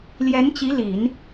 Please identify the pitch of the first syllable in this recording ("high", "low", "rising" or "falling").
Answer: rising